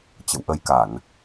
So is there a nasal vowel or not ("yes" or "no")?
no